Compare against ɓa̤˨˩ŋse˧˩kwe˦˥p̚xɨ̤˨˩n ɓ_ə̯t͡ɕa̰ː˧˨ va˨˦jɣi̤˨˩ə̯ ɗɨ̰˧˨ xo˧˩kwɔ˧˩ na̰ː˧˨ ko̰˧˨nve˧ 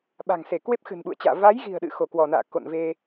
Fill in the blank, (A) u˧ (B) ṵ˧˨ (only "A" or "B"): B